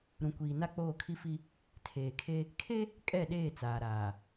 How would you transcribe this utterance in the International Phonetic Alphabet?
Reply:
ɾũ˨kʷiː˨na˦ k͡poː˦˨kʰi˦fi˦ | tʰeː˨kʰe˦ | kʰe˦ | kʼɛ˦˨ɗeː˦˨ t͡saː˨ɾaː˨

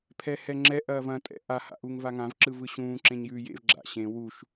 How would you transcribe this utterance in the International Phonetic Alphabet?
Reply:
pʰɛhɛŋ͡ǁɛ ʔɐːvɐ̃ tʼɛ̰ʔa ha̰ʔuŋvaŋãv ǁɯvɯɕũː ǁẽɲjʉːjḛv ɡ͡ǁa̰ɕẽ wuʃ

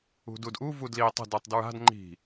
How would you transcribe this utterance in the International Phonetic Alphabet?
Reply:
ṳdudʔu vudli tˤə̤ dutˤdɹa̤d ŋ͡ǃi̤

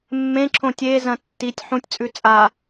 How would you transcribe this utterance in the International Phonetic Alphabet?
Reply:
mːẽǁʰõ tʲezɐ̃ tːitʲ ħũtʲt͡sʼʉ t͡sʼa

